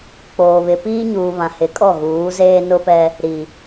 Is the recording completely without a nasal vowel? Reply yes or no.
no